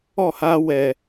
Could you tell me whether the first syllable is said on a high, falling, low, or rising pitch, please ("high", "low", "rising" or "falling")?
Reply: falling